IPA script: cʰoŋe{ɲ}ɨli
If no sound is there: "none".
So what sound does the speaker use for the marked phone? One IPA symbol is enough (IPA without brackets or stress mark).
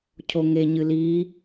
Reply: ɲ